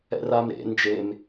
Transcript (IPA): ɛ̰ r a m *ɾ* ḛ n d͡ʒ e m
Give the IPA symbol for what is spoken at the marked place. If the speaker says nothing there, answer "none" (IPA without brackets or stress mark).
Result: ɾ